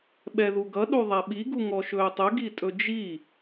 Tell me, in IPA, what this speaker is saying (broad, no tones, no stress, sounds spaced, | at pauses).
ɓ ɛ ð u ɡ ʌ ɗ u ðˤ ɛ ɓ i ɡ u ŋ ɔ ʃ ɵː tˤ ɵ ɡ i tʼ ɵ d͡ʒ i